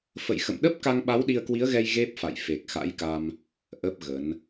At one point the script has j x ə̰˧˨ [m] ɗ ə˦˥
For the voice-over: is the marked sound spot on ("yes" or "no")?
yes